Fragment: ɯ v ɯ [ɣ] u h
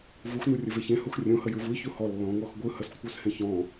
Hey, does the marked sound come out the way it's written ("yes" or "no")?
no